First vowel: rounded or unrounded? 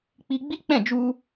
unrounded